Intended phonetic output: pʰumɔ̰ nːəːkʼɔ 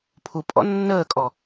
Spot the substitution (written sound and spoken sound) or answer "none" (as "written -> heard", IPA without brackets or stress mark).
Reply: m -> pʼ